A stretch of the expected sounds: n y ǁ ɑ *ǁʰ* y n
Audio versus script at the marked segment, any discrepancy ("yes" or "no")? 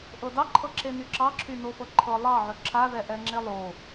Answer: no